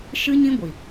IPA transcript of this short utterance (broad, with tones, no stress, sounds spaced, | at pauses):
ʃ ɨ˦ ɲ ĩ˦ ɡʷ i˨